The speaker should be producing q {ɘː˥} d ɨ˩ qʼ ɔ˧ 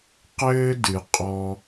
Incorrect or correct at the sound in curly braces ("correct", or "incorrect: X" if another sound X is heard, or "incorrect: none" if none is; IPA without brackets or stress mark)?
correct